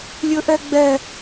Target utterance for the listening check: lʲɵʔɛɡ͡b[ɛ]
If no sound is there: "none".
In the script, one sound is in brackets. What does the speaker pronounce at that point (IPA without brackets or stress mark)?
ɛ